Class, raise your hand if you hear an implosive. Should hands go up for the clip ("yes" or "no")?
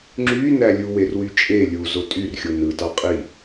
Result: no